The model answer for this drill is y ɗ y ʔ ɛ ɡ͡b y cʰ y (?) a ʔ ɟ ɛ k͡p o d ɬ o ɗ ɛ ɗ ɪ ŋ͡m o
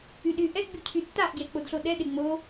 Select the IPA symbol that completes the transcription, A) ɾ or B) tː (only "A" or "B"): B